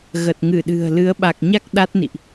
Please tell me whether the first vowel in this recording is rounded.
no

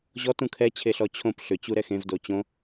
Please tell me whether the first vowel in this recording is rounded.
yes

